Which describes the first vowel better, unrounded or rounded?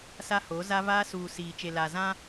unrounded